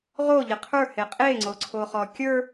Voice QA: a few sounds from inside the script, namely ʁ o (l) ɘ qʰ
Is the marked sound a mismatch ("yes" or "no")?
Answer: yes